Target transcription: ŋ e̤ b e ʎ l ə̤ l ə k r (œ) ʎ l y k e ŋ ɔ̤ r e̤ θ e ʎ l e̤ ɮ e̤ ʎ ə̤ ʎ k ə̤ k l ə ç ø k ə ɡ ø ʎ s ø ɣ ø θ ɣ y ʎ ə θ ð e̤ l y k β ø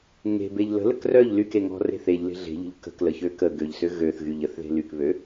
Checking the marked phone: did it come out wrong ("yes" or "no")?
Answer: no